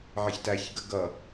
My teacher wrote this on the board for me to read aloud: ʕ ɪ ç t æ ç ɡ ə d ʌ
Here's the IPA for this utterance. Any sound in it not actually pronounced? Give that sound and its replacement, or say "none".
d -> ɡ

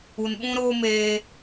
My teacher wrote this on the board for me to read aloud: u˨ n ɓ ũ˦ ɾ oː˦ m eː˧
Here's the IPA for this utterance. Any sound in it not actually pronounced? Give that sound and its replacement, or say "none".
none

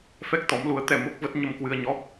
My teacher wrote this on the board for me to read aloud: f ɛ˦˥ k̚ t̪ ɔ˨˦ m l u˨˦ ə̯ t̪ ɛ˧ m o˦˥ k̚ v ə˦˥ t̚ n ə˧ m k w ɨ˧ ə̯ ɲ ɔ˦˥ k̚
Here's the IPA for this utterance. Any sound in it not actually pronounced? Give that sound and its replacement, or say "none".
n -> ɲ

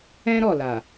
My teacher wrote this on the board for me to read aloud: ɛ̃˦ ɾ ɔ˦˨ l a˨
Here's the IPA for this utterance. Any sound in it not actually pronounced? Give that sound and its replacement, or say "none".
none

